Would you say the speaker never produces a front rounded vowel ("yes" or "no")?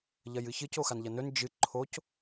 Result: yes